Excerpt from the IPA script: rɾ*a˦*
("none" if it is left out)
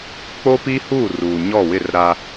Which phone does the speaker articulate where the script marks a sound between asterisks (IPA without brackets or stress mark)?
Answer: a˦